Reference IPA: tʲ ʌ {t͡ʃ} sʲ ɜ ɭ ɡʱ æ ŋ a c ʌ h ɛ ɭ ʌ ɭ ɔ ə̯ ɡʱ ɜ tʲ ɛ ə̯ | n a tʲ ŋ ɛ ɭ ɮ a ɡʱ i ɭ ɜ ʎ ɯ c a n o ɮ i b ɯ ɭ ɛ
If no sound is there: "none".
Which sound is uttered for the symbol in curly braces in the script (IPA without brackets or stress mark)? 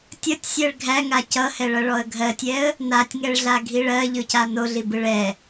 tʲ